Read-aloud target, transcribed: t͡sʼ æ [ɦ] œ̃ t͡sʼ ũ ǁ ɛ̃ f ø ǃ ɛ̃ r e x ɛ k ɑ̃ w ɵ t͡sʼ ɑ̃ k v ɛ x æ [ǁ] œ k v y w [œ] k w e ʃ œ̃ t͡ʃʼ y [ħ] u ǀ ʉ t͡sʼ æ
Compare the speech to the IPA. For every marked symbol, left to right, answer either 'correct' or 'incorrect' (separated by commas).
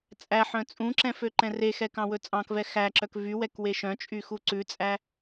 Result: incorrect, correct, incorrect, incorrect